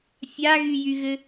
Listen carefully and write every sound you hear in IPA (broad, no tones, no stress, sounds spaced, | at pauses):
fʲ a ɣ y j y ɣ ɘ